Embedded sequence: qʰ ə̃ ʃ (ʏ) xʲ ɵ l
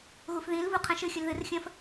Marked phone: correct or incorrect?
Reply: incorrect